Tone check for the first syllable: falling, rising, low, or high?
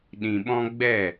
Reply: low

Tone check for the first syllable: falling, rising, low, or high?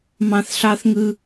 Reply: high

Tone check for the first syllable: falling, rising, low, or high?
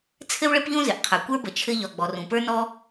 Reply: high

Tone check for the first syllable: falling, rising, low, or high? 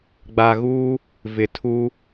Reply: low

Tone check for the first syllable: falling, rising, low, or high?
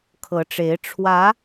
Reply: rising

